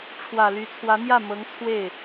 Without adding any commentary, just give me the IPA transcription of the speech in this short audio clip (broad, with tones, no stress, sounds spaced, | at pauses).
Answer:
ʈ͡ʂʰ w ä˨˩ l y˧˥ t͡sʰ w ä˧˥ n̪ j ä˥˩ m ɤ˧˥ ŋ t͡sʰ w e˥˩ ɪ̯